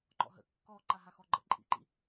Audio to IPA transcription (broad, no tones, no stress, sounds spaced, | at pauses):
ŋ͡ǃ ɔ̰ ɦ ə̰ kː ɔ ǃ a ɦ a x ɔ ɡ͡ǃ ə̰ ǃʼ ḭ ǃ ḭ